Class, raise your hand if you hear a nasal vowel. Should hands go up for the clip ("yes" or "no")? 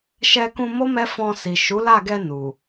yes